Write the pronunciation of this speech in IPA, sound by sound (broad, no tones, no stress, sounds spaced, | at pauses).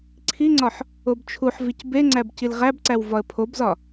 ǀʰ i ŋ͡ǀ ɒ ħ | o b t͡ʃʰ u ħ v i c b e ŋ͡ǀ æ b c i l ʁ æ b ǀ æ w v ɒ ə̯ pʰ o b z ɒ